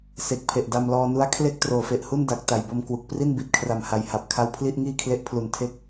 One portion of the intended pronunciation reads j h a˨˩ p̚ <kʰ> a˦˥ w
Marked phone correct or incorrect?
correct